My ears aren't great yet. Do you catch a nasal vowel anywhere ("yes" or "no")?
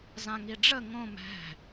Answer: yes